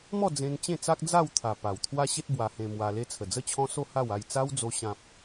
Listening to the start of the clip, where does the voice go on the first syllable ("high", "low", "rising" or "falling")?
falling